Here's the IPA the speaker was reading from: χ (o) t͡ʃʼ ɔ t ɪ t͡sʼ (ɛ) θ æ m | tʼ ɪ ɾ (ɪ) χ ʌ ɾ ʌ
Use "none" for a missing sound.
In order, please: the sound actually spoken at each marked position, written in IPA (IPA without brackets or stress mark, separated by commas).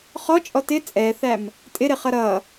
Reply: ɔ, ɛ, ɪ